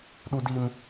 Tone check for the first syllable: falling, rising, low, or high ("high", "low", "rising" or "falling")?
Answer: high